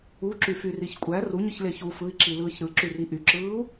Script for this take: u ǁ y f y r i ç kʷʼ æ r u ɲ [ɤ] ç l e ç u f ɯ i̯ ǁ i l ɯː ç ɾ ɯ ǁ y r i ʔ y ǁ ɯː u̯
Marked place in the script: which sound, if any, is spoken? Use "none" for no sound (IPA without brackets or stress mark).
ɯ